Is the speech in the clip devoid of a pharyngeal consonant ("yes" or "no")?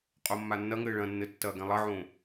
no